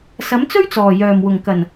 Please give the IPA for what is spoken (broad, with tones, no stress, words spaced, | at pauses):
sɐ˨˥mt͡sɵ˥ɥt͡sɔː˨˩ jœː˨˩mwʊ˨˩ŋ kɐ˨˩n